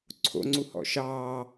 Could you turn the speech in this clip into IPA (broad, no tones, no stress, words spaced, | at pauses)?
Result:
ǀʰo̰ŋ͡ǀuhɔ̰ ʃɑː